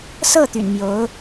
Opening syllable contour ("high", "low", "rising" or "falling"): falling